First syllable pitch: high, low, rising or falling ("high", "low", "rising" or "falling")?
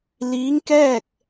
rising